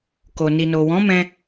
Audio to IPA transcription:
ko˨ni˨no˨wɔ̃˨˦ mɛ̃˧

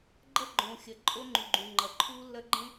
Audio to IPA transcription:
ɡ͡ǃɐ˦ɡ͡ǃõ˨xʲɐ˨ ǃʼo˦ŋ͡ǃʉ˨ɡ͡ǃũ˨ŋ͡ǃɐ˨ ǃʰu˦lːɐ˦ɡ͡ǃẽ˦

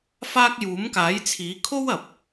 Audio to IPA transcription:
faː˥k̚ juː˨˥mkaː˨˥jt͡sʰiː˨˥ kʰo˥wɐ˨p̚

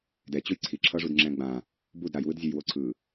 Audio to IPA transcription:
dɛ t͡ɕujǀʰi ǁʰʌʐud ŋ͡ǁɛ̃ɡ͡bã | bud ɾajwɯdzʲɛj woǀʰɯ

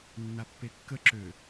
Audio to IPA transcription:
nːapːekːə ǁø

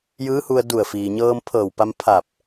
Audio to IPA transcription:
jɯː˧˥hu˧ə̯ du˧˩ə̯fiː˩ɲɤː˧m pʰɤː˧˩wpa˧m pʰa˧˩p̚

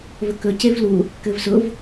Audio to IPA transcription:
vɵkɵ cevlu | kɘvsʊv

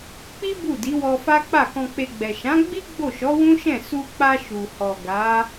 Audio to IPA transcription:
k͡pi˦ bu˦˨di˨˦wɔ˧fa˦ k͡pa˦˨kɔ̃˧k͡pe˧ɡ͡bɛ˨ ʃã˨˦ɡ͡bi˦ ɡ͡bo˦˨ʃɔ˨˦wũ˦ʃɛ̃˦˨ su˧k͡pa˧ ʃu˨hɔ˨ɡa˨˦

